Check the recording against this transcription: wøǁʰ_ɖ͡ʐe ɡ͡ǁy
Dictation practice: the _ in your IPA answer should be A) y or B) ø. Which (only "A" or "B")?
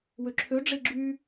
B